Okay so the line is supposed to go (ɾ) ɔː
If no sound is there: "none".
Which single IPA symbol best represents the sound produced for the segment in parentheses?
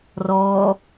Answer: r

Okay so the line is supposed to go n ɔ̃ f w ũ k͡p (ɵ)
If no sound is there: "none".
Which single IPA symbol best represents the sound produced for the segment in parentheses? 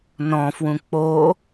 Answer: o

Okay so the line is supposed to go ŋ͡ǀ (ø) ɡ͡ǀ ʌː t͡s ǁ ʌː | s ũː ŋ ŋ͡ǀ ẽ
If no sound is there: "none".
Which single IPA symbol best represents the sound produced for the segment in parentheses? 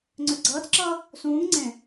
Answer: ø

